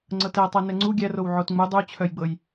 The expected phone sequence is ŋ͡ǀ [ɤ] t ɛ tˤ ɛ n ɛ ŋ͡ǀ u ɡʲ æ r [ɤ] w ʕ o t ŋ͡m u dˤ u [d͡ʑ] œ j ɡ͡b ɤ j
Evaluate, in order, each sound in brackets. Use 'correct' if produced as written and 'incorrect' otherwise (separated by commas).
correct, incorrect, incorrect